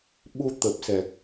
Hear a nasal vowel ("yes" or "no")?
no